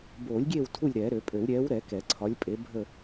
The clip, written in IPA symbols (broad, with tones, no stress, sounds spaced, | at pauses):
b oː˨˩˦ lʲ ɡʲ eː˦˨ w tʰ u˦˨ lʲ ɾ ɛː˨˩˦ ɾ ø˨˩˦ pʼ ø˨˩˦ w ɾʲ ɛː˨˥ w ɾ ɛ˨˩˦ k ɛ˨˩˦ ǀʰ ɒ˨˥ lʲ pʼ e˨˥ bʱ ə˦˨